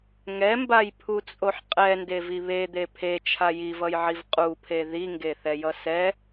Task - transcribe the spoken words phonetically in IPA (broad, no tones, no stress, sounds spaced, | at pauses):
ŋ ɛ m b a j pʰ u t͡sʼ o ħ qʼ ɛ n d e v i β e d̪ e pʰ e t͡ʃʰ a j i v ʌ j ʕ i v qʼ u pʰ e ð i ŋ ɡ e θ ɛ j ʌ s ɛ